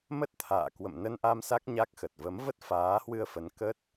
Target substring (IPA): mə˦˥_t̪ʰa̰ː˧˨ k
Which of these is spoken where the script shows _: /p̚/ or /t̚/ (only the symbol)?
t̚